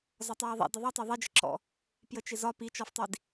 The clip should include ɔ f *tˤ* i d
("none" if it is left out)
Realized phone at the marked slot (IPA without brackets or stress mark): tˤ